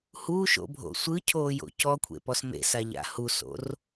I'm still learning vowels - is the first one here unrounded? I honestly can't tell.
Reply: no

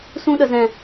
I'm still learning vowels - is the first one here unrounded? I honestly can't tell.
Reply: no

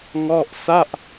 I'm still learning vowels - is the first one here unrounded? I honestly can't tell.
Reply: no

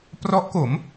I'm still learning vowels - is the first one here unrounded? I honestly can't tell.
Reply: no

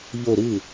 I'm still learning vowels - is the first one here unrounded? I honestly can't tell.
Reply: no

